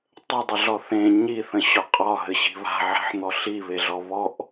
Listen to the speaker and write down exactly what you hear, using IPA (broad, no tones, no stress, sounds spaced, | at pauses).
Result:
tˤ ə dˤ ə ɮ ɔ θ ẽ ɲ i θ ə̃ ɕ ɒ qʼ ɒ ɦ ɘ ɕ i̤ β a̤ ʕ e̤ ħ n̪ ɔ ɬ i β e ɮ ɔ β ɔ ʔ